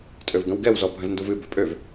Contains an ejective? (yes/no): yes